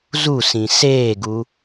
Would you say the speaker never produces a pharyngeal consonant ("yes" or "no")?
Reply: yes